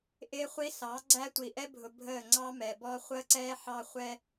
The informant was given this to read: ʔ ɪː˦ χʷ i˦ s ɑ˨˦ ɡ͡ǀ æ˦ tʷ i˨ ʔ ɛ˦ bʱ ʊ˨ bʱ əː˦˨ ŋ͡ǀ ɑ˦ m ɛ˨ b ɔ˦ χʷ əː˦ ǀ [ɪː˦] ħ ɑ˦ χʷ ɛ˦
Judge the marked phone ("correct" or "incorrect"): incorrect